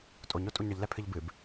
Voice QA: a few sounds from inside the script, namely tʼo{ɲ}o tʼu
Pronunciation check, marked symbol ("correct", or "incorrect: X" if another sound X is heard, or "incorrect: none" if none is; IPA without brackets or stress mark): correct